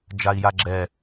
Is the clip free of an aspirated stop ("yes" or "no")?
yes